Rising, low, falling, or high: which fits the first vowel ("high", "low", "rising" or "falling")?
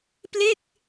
falling